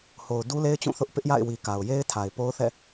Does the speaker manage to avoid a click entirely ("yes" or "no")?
yes